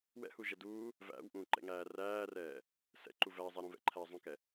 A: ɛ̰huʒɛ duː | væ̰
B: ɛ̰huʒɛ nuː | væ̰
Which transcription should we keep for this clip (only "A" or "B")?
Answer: A